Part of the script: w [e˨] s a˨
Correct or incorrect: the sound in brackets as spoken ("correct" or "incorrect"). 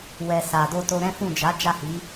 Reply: incorrect